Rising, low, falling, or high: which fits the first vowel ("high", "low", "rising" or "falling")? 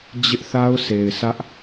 high